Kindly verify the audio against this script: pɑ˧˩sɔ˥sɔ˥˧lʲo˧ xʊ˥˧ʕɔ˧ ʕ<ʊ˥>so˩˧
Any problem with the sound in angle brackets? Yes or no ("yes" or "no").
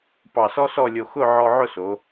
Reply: yes